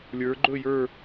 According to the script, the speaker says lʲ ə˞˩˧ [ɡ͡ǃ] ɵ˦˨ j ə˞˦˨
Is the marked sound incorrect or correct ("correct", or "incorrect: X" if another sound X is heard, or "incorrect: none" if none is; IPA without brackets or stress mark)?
correct